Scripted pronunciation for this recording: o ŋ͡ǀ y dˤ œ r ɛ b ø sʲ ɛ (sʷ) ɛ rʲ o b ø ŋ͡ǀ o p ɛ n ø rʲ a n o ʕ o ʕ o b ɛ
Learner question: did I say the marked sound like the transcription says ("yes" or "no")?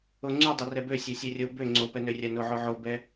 no